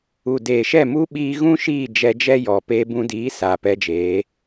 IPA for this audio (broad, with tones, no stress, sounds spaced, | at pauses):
u˨ d eː˨ ʃ ɛ˦˨ m u˦ ɓ iː˧ ɣ ũ˦ ʃ iː˦˨ d͡ʒ ɛ˧ d͡ʒ ɛ˦ j ɔ˧ p eː˧ b ũ˧ d iː˨˦ s aː˨ p ɛ˧ d͡ʒ eː˨˦